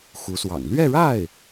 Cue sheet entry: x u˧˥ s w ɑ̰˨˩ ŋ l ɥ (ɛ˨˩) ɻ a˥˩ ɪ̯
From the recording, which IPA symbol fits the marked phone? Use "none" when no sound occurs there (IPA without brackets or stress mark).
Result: ɛ˥˧